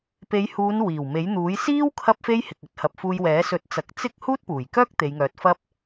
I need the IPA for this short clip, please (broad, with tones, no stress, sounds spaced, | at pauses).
p e˨˧ j h uː˨˧ n w iː˨˩ w m e˨˥ j n̪ uː˨˥ j s iː˥ w kʰ ɐ˥ p̚ f e˥ j h ɪ˨ k̚ ɵ˧ t̚ h ɐ˨ p̚ f uː˧ j w ɛː˨˥ s ɵ˨˥ t̚ t͡s ɐ˨˥ k̚ t͡s ɪ˥ k̚ h uː˥ t̚ p uː˨˩ j k œː˥ k̚ t̪ e˨˧ j ŋ œː˨˥ t̚ f ɐ˥ p̚